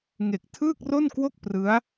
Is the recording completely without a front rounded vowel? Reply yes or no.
yes